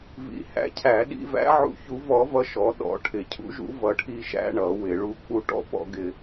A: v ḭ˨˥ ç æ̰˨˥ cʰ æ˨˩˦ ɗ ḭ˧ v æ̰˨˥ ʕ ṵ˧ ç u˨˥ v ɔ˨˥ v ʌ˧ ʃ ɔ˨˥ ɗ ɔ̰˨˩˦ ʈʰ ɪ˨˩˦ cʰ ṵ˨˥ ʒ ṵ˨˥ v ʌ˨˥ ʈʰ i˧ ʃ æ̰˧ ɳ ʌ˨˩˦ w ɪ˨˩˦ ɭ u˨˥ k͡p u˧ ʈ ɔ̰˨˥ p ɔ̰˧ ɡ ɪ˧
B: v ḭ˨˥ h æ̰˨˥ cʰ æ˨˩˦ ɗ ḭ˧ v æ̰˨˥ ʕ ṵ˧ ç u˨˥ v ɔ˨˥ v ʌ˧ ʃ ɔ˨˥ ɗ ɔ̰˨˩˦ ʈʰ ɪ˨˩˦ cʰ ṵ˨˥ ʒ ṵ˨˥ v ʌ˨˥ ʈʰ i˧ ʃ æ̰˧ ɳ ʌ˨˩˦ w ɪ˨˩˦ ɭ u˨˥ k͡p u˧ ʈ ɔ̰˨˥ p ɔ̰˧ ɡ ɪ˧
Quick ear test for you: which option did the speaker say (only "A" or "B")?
B